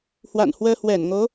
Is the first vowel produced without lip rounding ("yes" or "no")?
yes